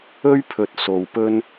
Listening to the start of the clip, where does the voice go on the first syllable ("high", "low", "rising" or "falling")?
high